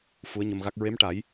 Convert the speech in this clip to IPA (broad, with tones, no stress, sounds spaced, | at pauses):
f u˧˥ ə̯ ɲ ə˧ m ɣ a˦˥ k̚ ɹ e˧˥ m ʈ a˨˩˦ j